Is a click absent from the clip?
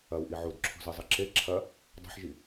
no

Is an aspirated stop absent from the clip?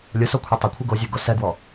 no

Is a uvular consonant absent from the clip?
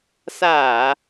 yes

